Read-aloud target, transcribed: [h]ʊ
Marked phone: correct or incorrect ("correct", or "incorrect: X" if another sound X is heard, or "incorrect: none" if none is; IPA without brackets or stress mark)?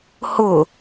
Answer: correct